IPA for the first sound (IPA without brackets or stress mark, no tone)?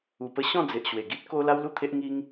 u